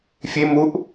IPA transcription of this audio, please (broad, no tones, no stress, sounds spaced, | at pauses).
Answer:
fʲ e m u ʔ